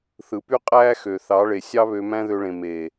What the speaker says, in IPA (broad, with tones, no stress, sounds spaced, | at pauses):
θ ɯ˨ p y˦ qʼ æː˦ x ø˨ θ ɑ˨˦ ɭ e˨ sʲ ɑ˦ β ø˧ m æ̃˦ ð ø˧ ɭ ẽ˨ m eː˨